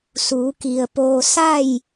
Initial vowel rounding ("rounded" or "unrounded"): rounded